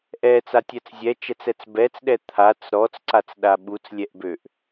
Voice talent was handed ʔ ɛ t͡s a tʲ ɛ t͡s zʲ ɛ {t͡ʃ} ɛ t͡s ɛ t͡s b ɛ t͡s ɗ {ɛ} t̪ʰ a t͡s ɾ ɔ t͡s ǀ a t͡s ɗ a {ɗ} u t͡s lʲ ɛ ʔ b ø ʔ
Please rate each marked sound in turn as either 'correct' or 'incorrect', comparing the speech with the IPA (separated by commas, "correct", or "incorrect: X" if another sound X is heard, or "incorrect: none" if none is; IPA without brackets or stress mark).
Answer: correct, correct, incorrect: ɓ